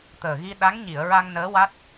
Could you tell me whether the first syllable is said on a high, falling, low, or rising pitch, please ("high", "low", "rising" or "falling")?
low